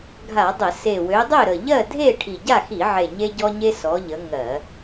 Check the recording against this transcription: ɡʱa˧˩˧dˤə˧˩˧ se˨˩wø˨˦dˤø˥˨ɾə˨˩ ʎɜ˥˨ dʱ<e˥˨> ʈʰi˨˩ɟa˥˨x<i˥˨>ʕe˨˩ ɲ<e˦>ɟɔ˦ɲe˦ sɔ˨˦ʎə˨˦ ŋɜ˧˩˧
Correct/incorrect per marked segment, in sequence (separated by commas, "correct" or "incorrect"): correct, incorrect, correct